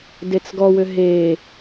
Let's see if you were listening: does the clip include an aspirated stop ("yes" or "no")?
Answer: no